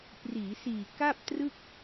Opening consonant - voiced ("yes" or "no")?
no